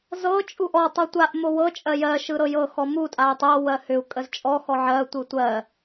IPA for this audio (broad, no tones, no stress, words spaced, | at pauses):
zɤ t͡ʃʼuʔɔ tˤotʷaʔ mowɤ t͡ʃʼɜjɜ ʃɯɾɤjɤ xɔmu tʼay̯tˤɤ wɜhʏu̯ kʼəzt͡ʃʼɔ xɔʕɜ tʷɯtʷɜ